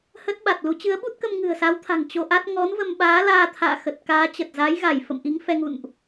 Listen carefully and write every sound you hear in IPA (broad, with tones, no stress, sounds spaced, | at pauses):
h ə˦˥ t̚ ɓ a˨˩ t̚ l u˨˦ t͡ɕ ɨ˨˦ ə̯ ɓ u˦˥ t̚ k ə˧ m ŋ ɨ̤˨˩ ə̯ s a˨˦ w t̪ʰ a̤˨˩ ŋ t͡ɕ o˧ ʔ a˦˥ t̚ ŋ ɔ˨˦ n v ə˧ m ɓ aː˨˦ l aː˧ t̪ʰ a̰ː˧˨ x ə˨˩ t̚ k aː˨˦ t͡ɕ ə˨˩ t̚ z a˨˦ j ɣ a˧˩ j f ə̰˧˨ m ʔ i˨˦ ŋ f ɛ˧ ŋ ṵ˧˨ n ʔ